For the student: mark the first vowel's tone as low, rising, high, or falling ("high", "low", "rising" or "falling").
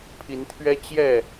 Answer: rising